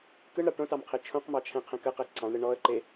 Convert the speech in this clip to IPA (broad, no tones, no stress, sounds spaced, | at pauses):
k ɯ ɳ ɾ ɑ ʈ õ t ɑ m qʰ e t͡ʃʰ õ q m ɑ t͡ʃʰ ɛ̃ qʰ ɛ̃ k ə q ɛ ǀ ɑ̃ ɳ ɾ ɯ ɳ ɔ ə̯ ǃ e